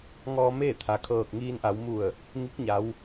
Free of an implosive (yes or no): yes